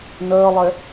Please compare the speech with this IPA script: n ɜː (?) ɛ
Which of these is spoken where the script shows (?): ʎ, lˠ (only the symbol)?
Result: lˠ